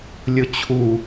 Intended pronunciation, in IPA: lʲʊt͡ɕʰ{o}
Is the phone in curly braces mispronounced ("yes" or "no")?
yes